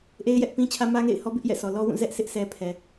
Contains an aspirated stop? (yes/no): yes